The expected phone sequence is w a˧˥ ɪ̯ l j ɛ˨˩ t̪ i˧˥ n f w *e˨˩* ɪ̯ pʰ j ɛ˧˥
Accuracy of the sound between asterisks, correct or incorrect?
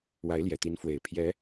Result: correct